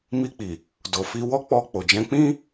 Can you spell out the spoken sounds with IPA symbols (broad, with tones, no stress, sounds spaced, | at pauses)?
m i˧ k͡p i˨ | d o˨ f i˧ w ɔ˦ k͡p ɔ˧ k͡p o˨ d͡ʒ ɛ̃˧ k͡p ĩ˦